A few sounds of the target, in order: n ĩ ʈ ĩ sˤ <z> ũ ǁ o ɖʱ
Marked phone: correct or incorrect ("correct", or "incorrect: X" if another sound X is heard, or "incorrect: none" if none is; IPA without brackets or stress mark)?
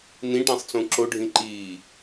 incorrect: t͡s